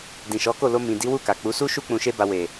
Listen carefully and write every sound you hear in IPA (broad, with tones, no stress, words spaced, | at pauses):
dĩ˨ʃɔ˨˦ko˦˨lo˧ mĩ˨di˨˦wu˦˨ka˨ k͡pu˨˦su˦ʃu˦ k͡pũ˧ʃe˦ba˧ we˨